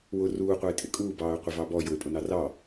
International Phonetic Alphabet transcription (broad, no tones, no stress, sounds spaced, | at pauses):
w ʊ r uː qʷ ʌ ɪ̯ tʼ ɪ kʼ uː b ɑː ʊ̯ qʷ ɪ v ɑ b ɔ j ʊ ɪ̯ pʼ ʊ n ɑ r ɑ